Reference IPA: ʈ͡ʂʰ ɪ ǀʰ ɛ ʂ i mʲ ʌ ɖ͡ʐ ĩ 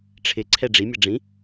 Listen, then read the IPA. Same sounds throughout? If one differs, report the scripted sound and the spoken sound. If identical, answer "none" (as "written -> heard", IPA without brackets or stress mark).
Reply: ʂ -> ɖ͡ʐ